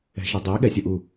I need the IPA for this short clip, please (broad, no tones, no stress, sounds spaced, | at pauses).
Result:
ɛ̤ ʃ e dˤ e ɠ ɛ sʲ ɯ ʔ u